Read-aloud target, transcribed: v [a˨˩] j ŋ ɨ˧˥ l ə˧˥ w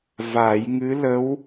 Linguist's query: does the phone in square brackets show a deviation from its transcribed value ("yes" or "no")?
yes